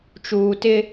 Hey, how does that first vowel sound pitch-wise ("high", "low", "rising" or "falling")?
low